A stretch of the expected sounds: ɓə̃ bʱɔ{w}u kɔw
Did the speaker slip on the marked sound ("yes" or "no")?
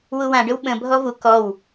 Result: yes